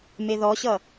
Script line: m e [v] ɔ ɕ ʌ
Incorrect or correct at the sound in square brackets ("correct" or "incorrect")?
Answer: incorrect